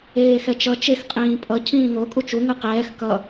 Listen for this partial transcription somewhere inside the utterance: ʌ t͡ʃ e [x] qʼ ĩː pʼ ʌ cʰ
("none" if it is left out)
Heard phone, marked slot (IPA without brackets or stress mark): x